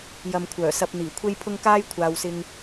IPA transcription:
jɐ˨m kʷʰœː˨˩sɐ˧p̚ n̪iː˨˩kʷʰe˥jpʰʊ˥ŋ kaː˥jkʷʰaː˨wsɪ˧ŋ

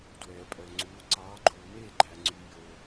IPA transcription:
dwɛː˨pʼœ˨ŋ͡ǀuː˨˦ ǀɑː˨˦ɡ͡ǃuː˨meː˥˨ɡ͡ǃæ˨ ŋ͡ǀy˨jo˨

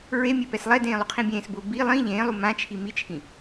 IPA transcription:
ɹemʲe pɛslˠɛdẽː lˠuqʰĩbʲẽːsbʊː bi lˠĩ ʎẽːlˠu mãt͡ʃʰi mit͡ʃʰĩ

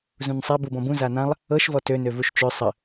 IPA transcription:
zũnsˤab ubɔ̃bũ zanãlˠ | ɤʃvɔ tønøvuʃ t͡ʃø sˤə

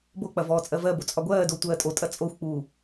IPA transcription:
bok͡pɐ vɔːt͡sʼɜvɜbo t͡sʼɒɡʷɜːdo tʷɜːtʼotʼɐ t͡sʼoxʷk͡puː

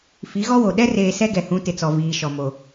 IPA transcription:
fi˨˦ɣɔ˦wo˨ ɗɛ˦reː˨ sɛ˦ɡɛ˨hũ˨˦ tɪ˨t͡sɔ˨viː˨ ʃɔ˨mo˨

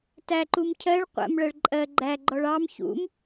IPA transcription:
tæǃum cʰɜɭ qʷæ̰mɭɜɭ ǃʼɜ ɡ͡ǃæɡ͡ǃɔɭ ɑm çṵm

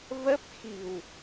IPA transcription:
və˦˥p̚xi̤˨˩w

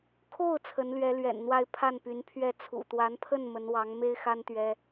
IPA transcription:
kʰo˥˩ʊ̯ t͡sʰə˧˥nlɥɛ˧˥lɥɛ̰˨˩nn̪wa˥˧ɪ̯ pʰa˥˩npy˧˥npʰɥɛ˥˩ t͡sʰṵ˨˩t̪wa˧˥npʰə˥˩n mə˧˥nwɑ˧˥ŋ me˥ɪ̯xa˥n t̪ɥɛ˥

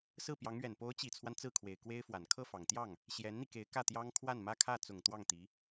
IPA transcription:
sɹ̩˥˩pjɑ˧˥ŋɥɛ˨˩n po˧˥ʊ̯t͡ɕi˨˩t͡sʰwa˦n t͡sɹ̩˥˩kʰwe˨˩ɪ̯kwe˥ɪ̯fwa˨˩n kʰɤ˥˩fɑ˨˩ŋt̪jɑ˥˩ŋ | ɕjɛ˧˥nn̪i˧ke˧˥ɪ̯ kä˥˩t̪jɑ˥ŋ kʰwa˥˩nmä˥kʰä˥˩ t͡sʊ˨˩ŋ t̪wɑ˥˩ŋt̪i˧˥

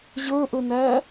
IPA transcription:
ʑə˞ʔənæ

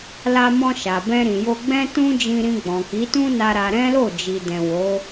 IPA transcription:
la˧mɔ̃˧ ʃa˨bɛ̃˧ɾĩ˨jo˧ ɡ͡bɛ̃˦ tũ˦d͡ʒĩ˧ɾĩ˧ ɡ͡bɔ̃˨ki˨˦tũ˦na˧ ɾa˧ ɾɛ̃˦lo˦˨ d͡ʒi˨dɛ̃˨ wo˨˦

